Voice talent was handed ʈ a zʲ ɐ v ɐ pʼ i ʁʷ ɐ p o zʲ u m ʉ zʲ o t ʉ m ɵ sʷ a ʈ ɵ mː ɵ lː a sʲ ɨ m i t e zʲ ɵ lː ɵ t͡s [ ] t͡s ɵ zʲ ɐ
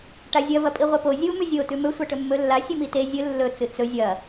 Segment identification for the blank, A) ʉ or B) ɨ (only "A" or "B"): B